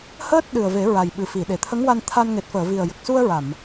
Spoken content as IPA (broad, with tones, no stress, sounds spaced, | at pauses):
h əː˦˥ t̚ ɗ ɨ˨˩ ə̯ v e˨˩˦ ɹ a˨˩ j ɓ ɨ˨˩ f i˨˩˨ ɗ e˨˩˨ t̪ʰ ə˧˥ ŋ w a˧ n t̪ʰ a˧ n ŋ e˨˩ t̚ f əː˨˩˨ v i˨˩ ə̯ j ə˨˩ k̚ s u˧ ə̯ ɹ a˨˩˨ m